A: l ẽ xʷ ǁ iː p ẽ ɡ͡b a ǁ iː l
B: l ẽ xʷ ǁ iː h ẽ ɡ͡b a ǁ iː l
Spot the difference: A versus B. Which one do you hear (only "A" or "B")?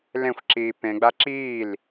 A